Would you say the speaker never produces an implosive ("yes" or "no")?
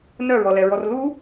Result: yes